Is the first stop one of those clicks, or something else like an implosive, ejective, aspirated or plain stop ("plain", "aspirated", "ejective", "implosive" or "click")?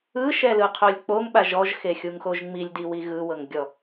aspirated